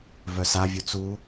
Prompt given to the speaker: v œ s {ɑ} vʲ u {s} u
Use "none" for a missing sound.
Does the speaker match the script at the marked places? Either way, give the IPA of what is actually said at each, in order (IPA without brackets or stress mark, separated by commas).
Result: a, t͡s